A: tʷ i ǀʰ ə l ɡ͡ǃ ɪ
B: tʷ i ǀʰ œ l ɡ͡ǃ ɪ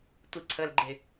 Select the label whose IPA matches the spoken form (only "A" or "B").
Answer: A